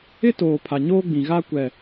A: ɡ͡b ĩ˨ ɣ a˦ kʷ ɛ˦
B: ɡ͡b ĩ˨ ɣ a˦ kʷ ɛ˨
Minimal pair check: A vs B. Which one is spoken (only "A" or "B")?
B